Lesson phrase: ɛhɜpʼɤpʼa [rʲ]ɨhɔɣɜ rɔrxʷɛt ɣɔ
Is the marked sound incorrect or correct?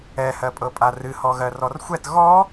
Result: incorrect